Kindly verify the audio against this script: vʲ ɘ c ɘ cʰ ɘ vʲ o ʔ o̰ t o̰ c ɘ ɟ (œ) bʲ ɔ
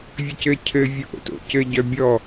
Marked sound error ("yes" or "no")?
no